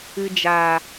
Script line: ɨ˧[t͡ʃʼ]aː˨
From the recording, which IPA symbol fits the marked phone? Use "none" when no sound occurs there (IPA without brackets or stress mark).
d͡ʒ